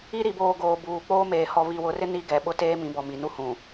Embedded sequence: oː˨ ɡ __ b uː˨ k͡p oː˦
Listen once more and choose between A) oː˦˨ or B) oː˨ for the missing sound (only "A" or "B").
B